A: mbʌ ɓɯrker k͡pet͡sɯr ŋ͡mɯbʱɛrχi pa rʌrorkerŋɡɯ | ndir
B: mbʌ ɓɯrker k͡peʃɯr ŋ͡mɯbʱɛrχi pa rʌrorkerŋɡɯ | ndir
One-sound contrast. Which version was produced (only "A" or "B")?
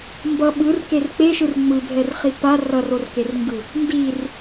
B